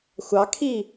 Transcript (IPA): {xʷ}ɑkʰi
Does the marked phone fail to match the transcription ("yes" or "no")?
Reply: no